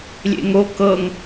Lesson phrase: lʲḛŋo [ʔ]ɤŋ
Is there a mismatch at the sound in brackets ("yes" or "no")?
yes